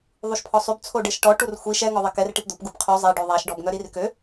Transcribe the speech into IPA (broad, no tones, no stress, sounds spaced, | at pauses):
ðˤ u ʃ pʰ ɔ sˤ y b t͡sʰ o ɖ e ʃ ʈ ɔ ʈ u r xʷ i ʃ ɛ ŋ ɔ ðˤ e k ɛ r ʈ i p d̪ o p ɡ u p qʰ y zˤ e ɖ ø ðˤ a ʃ ɖ ɔ b ŋ œ ɾ i r k ø